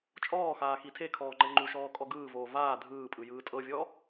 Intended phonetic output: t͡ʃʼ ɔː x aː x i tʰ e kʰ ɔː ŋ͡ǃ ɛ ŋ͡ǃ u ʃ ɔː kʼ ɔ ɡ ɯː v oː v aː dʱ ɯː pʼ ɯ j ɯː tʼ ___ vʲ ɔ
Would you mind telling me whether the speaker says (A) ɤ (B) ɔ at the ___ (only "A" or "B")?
A